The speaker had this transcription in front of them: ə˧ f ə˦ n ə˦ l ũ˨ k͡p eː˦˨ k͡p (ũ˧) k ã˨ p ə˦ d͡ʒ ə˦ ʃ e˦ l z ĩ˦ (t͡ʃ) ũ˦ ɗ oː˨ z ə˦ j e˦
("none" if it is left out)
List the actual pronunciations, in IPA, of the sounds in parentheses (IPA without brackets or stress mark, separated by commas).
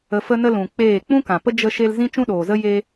ũ˦, t͡ʃ